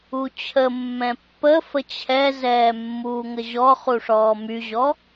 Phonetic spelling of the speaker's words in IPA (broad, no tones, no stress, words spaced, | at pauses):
ut͡ɕʰəmːɛ̃ pːə fət͡ɕʰɛzɛː mːuːŋəʑɔχu ʂɔːmyʑɔ